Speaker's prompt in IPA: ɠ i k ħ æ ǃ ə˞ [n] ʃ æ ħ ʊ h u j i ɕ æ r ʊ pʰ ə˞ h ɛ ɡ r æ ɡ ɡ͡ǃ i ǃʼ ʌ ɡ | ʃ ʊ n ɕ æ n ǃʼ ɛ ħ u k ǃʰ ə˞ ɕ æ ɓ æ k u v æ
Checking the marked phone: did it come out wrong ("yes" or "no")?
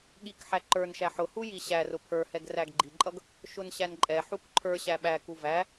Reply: no